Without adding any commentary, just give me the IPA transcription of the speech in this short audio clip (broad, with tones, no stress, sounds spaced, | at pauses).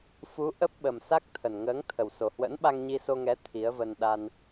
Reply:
f u˨˦ ʔ ə˦˥ p̚ ɓ ə˨˩ m s a˦˥ k̚ t̪ʰ ə˨˩ n ŋ əː˨˦ ŋ t̪ʰ ə˨˩ w s o˨˩ h w ə̰˧˥ n ɓ a˧ ŋ ɲ i˧ s o˧ ŋ ɛ˨˦ t̪ʰ i˨˦ ə̯ v ə˧ n ɗ a˧ n